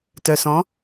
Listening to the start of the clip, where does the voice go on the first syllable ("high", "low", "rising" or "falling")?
low